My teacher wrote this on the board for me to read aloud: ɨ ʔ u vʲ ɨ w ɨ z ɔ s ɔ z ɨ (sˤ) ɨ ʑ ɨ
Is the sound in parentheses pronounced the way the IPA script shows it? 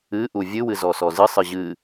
yes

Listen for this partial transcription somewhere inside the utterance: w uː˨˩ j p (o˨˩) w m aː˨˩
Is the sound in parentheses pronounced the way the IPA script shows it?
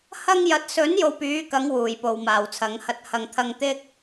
no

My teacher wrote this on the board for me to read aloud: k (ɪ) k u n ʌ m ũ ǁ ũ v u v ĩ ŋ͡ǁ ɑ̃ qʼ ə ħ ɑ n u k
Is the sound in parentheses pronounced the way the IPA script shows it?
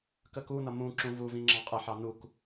no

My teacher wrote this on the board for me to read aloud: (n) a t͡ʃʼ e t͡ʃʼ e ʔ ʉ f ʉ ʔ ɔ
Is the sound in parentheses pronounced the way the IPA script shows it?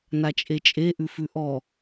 yes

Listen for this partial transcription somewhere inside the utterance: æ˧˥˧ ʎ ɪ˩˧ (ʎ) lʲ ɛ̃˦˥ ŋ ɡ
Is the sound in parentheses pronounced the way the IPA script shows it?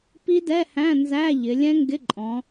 no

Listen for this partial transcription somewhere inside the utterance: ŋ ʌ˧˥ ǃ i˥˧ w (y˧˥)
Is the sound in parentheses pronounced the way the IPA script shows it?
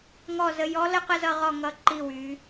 yes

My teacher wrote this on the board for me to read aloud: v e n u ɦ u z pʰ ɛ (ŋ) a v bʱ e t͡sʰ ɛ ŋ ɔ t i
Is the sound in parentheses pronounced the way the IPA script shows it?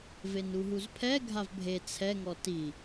no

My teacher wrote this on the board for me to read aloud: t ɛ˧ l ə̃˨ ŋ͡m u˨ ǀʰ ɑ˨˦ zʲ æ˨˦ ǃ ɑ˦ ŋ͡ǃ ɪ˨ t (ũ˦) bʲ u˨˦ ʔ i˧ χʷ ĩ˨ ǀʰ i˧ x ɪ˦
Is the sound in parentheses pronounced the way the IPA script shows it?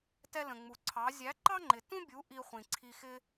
yes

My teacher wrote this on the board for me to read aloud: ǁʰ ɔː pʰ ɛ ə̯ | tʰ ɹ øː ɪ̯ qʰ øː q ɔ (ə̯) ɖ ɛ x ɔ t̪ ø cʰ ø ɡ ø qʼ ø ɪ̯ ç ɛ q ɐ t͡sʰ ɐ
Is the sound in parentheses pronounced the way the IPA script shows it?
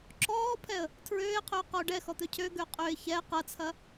no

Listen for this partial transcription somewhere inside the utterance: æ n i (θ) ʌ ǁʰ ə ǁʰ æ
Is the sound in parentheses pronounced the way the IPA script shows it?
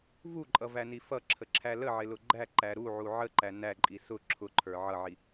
no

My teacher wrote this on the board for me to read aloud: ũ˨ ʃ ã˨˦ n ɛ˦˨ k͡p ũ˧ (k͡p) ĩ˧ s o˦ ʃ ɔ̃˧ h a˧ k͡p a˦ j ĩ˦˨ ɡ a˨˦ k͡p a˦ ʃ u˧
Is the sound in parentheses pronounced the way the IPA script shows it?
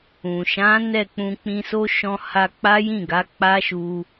yes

